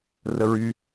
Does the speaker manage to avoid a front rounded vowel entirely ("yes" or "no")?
no